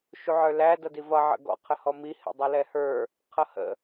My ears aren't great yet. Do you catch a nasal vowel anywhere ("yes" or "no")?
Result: no